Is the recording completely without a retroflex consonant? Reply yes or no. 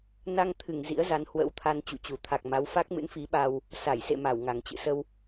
yes